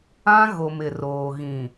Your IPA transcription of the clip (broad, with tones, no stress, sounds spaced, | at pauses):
ã˦ ɣ o˨ m ɪ˨ r oː˨ ɣ ĩ˨